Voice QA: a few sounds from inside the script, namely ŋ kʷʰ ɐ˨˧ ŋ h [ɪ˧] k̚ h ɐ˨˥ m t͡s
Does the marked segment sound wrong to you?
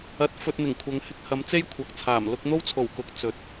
no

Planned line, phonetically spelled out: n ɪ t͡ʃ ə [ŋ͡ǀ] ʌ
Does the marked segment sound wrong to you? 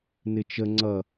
no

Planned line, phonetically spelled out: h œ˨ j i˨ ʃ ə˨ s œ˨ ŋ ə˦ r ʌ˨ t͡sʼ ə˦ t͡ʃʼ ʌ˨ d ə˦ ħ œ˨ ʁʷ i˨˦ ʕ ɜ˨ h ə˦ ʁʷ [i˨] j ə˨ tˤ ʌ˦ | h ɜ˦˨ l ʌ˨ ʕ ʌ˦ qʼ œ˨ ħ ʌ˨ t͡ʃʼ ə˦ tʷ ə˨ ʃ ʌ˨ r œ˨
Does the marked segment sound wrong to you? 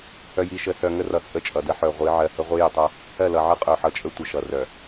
yes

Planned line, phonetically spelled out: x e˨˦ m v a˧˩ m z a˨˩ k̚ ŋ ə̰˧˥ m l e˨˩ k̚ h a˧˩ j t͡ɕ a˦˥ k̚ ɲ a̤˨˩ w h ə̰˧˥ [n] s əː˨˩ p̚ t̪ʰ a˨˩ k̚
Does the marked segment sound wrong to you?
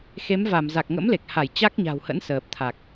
no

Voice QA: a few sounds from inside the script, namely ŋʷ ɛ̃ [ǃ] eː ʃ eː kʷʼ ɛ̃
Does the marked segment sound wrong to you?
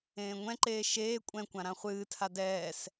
no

